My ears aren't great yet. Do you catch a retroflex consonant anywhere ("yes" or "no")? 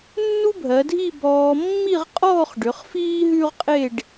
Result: yes